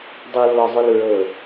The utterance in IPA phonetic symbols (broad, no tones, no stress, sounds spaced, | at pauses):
dˤ u lː ɔ zˤ ʉ l ɹ ɤ